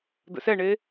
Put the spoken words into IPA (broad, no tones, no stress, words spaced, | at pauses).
d̪ə̰sɛɳe